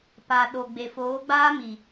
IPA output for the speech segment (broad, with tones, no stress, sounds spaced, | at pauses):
p a˨ ɗ o˨ ɡ͡b e˨ f oː˨˦ ɡ͡b aː˦ m i˨